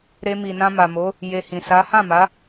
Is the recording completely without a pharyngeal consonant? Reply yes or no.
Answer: yes